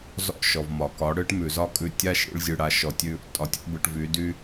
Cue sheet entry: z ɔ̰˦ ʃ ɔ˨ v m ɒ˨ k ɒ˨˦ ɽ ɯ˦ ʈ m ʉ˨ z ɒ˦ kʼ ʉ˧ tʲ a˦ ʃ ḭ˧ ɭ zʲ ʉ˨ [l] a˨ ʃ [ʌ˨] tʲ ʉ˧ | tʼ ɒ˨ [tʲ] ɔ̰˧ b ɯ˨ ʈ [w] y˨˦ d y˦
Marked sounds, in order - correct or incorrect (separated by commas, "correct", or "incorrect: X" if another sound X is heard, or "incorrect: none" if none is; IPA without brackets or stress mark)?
incorrect: ɽ, incorrect: ɔ˨, correct, incorrect: v